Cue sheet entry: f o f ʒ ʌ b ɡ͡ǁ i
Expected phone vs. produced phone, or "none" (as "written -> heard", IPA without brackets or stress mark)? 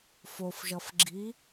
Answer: b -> f